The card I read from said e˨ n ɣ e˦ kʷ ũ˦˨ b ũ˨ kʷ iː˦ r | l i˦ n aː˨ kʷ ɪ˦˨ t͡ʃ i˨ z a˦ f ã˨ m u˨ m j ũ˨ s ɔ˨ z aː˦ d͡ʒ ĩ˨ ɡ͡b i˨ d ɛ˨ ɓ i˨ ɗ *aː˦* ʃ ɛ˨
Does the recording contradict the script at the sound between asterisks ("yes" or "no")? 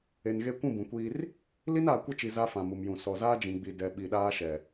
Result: no